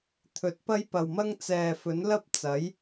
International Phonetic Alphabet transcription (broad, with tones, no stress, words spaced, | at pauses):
t̪ʰɵ˨˥t̚pɐ˥jpɐ˨wmɐ˥ŋ t͡sɛː˨fɵ˨˥nlɐ˥p̚ t͡sɐ˨˥j